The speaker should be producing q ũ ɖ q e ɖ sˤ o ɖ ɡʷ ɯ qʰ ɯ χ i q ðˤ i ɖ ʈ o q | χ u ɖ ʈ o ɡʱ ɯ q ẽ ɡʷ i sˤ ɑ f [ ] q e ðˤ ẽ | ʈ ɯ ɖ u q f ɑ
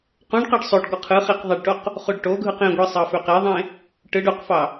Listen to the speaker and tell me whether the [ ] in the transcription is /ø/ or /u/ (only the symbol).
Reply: ø